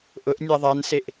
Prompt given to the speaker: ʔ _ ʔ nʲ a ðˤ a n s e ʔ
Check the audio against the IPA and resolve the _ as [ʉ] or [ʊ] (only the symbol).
ʊ